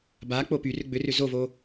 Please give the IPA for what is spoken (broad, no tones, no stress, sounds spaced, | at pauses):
b a k͡p o p y r ʏ ɡ͡b ʏ r ʏ z o v o